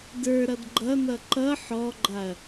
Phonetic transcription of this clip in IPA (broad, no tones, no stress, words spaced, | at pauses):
də˞ɾʌd ɡ͡ǃʌnʌ ǃʌ ħɔɡ͡ǃaɐ̯